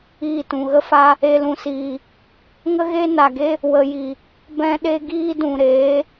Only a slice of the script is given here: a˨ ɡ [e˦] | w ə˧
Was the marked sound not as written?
no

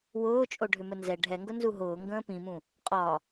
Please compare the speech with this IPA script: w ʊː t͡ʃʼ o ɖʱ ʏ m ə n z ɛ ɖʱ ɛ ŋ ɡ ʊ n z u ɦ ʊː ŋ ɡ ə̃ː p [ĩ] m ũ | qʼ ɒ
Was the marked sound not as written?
no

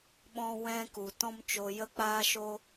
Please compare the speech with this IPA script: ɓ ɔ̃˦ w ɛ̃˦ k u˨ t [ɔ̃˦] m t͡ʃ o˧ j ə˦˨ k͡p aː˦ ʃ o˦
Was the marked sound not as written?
no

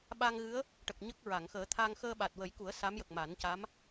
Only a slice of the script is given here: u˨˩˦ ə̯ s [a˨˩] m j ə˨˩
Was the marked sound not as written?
yes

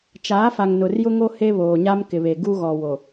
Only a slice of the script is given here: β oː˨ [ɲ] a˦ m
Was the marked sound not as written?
no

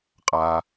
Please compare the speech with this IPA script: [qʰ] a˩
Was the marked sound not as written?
yes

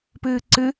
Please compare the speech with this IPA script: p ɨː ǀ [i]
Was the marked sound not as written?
yes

